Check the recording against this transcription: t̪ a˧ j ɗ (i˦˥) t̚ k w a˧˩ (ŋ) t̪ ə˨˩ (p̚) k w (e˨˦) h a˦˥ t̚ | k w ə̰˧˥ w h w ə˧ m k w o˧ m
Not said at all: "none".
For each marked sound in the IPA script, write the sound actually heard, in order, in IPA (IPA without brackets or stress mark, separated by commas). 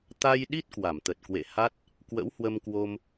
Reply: i˦˥, m, t̚, ḛ˧˨